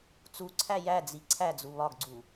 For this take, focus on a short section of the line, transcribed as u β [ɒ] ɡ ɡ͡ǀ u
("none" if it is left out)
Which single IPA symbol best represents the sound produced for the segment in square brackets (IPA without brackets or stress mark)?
ɒ